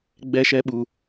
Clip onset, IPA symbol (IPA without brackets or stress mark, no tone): ɡ͡b